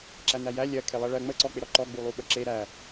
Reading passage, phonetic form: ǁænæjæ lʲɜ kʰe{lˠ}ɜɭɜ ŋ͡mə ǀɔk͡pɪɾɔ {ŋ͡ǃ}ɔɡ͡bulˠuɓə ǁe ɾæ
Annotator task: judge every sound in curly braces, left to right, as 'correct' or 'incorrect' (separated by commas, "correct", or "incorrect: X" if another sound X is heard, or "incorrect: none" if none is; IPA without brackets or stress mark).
correct, incorrect: ǃ